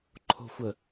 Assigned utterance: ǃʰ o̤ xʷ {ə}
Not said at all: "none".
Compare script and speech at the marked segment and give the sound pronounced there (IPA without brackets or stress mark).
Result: ə